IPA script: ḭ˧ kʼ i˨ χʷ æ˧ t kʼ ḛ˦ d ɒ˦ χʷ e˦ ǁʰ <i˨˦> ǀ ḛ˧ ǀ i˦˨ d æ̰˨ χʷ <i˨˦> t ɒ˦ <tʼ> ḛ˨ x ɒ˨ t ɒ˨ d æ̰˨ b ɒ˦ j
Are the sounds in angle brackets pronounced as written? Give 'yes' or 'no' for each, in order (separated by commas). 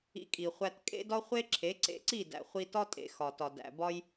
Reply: no, no, yes